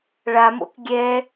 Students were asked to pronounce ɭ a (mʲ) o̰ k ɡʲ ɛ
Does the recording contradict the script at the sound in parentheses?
yes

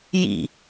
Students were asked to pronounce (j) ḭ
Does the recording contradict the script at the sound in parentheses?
no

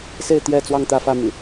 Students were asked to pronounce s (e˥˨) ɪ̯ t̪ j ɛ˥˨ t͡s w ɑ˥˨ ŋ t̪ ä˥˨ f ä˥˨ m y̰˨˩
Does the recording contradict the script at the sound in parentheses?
no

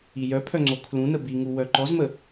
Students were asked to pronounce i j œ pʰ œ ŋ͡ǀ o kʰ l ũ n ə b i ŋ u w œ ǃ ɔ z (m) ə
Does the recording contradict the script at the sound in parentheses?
no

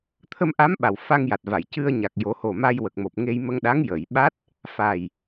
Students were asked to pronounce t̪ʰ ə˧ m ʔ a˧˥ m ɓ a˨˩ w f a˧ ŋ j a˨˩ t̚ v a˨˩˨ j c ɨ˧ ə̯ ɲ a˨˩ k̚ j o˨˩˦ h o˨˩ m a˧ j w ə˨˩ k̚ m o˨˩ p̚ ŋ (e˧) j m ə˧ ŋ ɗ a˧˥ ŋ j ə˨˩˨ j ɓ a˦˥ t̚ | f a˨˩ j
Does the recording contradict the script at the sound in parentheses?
no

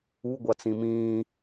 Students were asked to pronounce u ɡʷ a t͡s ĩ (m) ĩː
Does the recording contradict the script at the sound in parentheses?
no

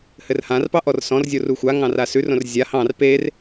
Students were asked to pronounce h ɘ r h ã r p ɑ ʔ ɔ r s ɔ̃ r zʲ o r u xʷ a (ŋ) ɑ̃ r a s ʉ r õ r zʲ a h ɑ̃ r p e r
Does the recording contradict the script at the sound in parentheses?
no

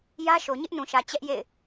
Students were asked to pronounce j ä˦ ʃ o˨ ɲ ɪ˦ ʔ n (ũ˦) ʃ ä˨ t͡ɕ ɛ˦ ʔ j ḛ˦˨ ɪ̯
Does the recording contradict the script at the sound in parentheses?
yes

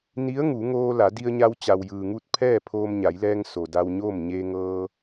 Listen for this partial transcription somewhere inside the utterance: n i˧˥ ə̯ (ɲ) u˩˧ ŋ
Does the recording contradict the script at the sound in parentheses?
yes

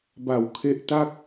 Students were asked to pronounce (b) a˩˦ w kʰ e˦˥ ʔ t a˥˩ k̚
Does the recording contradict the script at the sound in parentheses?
no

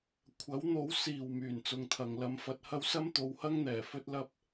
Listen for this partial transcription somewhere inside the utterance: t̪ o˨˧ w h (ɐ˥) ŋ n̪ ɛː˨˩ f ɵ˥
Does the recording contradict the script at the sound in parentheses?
no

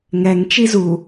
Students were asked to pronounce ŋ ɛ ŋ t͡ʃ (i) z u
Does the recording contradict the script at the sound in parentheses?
no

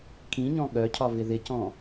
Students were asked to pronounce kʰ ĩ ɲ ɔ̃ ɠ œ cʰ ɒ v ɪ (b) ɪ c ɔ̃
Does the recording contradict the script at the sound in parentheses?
yes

